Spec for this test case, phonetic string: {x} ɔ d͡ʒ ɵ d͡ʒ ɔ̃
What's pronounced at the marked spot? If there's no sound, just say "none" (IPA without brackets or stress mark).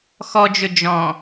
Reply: x